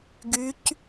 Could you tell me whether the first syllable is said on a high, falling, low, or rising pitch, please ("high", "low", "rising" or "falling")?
rising